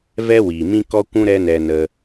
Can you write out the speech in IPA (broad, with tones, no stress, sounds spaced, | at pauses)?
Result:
v ɛ˦ w iː˨ m ĩ˦ k ɔ˦ kʷ ũ˦ ɾ ɛ˦ n ɛ˧ n ə˧